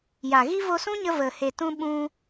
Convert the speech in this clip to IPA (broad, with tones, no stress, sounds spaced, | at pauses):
j a˨ ɣ i˦ v o˧ s ũ˦ ɲ ə˧ v ə˨ h e˨ t ũ˧ ɓ ũ˦